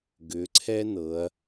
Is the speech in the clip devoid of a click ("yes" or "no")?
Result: no